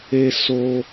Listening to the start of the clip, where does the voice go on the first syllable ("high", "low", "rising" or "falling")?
high